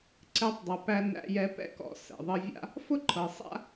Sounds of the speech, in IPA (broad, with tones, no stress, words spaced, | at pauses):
ǀɛ˧tˤdˤɤ˩ pæ˧næ̰˧jɛ˧ pɛ̰˥kɔ̰˧ sɛ̰˩ðˤɤ˧vʲa̰˥ | fʊ˥ǃʰɤ˩ sˤa̰˥